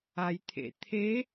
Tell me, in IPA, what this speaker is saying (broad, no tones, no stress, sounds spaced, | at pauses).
a j t̪ʰ ḛ t̪ʰ e